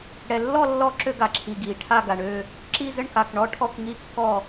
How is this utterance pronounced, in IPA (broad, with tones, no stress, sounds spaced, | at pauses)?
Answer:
ɽ ɛ˨ lː ɔ˥˧ lː ɔ˥˧ ǁ ø˥˧ ɡ a˨ ǁʰ i˨ ɡ i˨ ʈʰ a˥˧ ɡ a˨ ɳ ø˥˧ | ǁ i˥˧ z ə˥˧ ɳ k a˨ k ɳ ɔ˥˧ ʈʰ ɔ˥˧ k ŋ i˥˧ kː ɔ˥˧